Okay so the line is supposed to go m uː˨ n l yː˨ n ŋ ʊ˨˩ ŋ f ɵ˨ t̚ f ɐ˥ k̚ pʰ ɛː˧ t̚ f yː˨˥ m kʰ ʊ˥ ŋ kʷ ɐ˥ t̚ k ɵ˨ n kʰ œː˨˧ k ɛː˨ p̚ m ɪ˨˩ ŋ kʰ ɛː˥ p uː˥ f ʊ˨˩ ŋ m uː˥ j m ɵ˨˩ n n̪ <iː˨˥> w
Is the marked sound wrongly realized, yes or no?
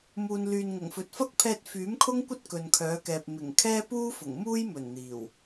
yes